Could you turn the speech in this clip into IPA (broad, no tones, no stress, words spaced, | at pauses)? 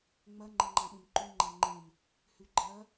ŋ͡mɐ ŋ͡ǃɐŋ͡ǃãɓẽmǃʉ ŋ͡ǃaŋ͡ǃẽn | hʉɡ͡ǃɐ